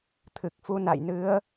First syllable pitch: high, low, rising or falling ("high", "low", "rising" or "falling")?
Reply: low